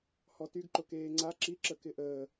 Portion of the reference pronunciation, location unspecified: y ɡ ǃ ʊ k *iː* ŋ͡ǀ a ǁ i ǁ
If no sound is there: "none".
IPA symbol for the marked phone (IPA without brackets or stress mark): eː